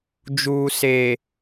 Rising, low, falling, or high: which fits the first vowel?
low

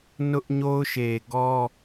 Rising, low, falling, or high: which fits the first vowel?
high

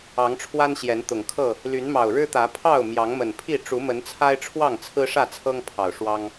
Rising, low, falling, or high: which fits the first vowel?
rising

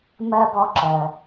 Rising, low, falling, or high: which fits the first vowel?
high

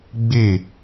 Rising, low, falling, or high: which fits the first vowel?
falling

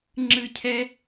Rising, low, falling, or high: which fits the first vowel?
falling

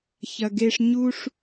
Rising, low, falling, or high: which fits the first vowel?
low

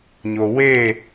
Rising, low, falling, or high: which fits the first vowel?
low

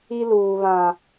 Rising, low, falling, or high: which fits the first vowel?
high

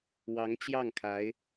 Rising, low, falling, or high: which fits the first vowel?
rising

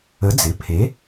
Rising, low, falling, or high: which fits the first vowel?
rising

